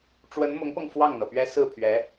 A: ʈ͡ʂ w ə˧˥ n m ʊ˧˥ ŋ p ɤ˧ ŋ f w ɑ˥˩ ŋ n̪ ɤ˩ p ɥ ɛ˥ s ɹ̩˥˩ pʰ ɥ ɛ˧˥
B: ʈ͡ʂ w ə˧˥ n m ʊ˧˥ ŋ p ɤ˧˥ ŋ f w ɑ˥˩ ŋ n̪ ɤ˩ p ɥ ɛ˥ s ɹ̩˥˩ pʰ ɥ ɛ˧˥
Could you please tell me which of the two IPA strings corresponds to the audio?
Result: A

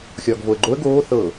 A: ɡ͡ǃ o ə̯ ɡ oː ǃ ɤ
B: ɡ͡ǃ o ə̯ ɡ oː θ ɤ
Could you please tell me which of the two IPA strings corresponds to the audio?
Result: B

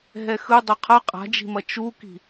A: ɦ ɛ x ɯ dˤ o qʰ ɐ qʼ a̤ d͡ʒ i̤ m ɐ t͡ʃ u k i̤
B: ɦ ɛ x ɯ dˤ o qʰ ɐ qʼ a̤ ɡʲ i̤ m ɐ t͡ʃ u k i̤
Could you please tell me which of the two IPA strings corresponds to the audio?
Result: A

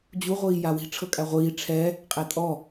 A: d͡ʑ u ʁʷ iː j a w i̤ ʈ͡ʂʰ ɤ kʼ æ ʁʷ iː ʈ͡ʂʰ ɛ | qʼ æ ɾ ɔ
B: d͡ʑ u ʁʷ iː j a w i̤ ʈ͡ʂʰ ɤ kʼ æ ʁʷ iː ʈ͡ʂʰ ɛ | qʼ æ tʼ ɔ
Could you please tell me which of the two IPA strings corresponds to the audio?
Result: B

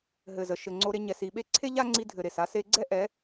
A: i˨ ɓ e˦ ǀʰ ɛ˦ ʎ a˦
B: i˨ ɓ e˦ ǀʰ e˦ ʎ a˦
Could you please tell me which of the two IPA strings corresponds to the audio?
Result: B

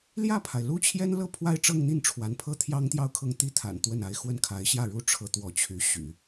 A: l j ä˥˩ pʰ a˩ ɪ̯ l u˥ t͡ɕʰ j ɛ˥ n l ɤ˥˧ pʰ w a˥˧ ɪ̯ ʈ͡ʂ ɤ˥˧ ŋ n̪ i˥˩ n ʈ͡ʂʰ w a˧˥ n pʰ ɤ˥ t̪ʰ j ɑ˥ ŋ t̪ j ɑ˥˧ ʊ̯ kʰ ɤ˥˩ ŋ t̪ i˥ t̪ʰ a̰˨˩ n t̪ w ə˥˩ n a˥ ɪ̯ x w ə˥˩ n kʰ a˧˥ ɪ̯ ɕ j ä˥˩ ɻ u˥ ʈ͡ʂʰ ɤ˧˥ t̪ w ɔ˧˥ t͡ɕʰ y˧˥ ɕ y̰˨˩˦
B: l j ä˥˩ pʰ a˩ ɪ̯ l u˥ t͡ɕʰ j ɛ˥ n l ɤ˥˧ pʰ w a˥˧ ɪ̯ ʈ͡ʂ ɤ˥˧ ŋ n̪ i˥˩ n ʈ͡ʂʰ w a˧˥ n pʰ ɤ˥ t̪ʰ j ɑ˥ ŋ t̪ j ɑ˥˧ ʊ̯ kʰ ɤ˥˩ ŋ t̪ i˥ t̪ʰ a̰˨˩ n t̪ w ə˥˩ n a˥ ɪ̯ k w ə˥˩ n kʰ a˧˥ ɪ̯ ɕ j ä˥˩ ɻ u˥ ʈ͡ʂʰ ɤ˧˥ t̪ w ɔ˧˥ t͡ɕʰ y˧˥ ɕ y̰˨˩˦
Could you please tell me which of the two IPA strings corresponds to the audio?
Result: A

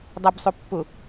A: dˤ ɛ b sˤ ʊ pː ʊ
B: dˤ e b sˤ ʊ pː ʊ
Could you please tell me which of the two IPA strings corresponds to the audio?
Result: A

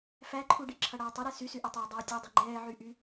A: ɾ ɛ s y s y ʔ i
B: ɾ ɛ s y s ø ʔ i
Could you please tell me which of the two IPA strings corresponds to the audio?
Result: A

